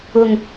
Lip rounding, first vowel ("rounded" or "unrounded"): rounded